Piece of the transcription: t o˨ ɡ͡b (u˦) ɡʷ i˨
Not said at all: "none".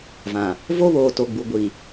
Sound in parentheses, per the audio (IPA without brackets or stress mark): u˨